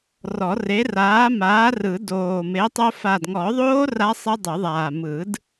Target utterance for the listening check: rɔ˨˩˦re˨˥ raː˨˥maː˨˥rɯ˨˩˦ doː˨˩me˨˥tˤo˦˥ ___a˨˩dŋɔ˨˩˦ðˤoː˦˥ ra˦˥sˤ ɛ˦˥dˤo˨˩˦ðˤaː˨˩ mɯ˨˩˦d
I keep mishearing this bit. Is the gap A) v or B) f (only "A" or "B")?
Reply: B